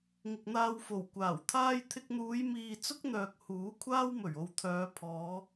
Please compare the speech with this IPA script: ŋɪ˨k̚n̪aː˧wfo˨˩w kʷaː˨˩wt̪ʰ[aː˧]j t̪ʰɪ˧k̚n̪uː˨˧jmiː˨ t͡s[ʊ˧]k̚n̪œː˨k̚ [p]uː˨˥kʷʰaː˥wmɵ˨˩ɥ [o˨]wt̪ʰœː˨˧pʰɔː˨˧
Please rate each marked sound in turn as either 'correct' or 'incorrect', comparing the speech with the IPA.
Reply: incorrect, incorrect, incorrect, correct

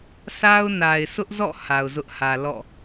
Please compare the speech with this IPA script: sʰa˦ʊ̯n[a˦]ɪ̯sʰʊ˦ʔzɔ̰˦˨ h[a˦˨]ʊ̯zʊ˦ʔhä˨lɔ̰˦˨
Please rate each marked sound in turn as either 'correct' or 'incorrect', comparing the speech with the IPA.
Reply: incorrect, incorrect

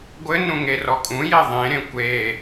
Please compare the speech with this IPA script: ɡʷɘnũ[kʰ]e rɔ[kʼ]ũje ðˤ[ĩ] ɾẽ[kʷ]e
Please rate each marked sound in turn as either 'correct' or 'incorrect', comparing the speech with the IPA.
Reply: incorrect, correct, incorrect, correct

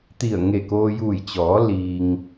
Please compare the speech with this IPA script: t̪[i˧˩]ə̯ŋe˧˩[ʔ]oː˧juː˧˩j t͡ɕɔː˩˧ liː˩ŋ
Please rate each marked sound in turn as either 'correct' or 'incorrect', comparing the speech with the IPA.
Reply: correct, incorrect

